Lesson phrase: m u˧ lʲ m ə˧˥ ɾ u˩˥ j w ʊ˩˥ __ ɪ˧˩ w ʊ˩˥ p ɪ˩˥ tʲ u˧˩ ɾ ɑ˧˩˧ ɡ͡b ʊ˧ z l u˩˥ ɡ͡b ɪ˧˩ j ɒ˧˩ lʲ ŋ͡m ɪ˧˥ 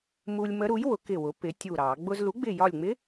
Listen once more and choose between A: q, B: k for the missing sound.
B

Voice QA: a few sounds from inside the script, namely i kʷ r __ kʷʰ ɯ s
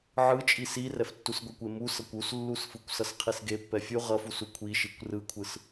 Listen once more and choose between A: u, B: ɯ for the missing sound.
B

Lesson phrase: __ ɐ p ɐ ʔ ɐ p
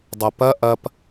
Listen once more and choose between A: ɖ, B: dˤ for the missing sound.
B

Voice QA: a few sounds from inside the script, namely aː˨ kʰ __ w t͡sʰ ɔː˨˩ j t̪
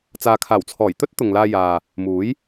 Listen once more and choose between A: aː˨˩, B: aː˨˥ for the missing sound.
A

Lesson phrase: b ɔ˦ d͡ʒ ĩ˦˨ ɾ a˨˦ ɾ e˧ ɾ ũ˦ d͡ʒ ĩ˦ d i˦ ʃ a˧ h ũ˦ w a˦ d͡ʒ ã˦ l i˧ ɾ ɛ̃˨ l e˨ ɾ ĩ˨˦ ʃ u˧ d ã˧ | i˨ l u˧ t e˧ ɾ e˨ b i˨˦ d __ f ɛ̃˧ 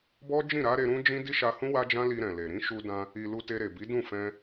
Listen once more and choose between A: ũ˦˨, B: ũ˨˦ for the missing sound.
A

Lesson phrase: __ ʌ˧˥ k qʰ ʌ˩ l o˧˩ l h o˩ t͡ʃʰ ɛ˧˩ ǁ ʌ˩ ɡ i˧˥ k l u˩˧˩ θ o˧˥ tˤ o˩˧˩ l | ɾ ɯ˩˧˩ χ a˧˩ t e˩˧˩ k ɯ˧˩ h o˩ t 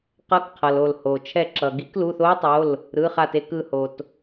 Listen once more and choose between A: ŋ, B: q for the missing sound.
B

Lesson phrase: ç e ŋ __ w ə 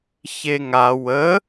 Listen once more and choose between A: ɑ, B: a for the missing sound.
B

